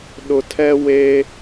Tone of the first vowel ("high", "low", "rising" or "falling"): low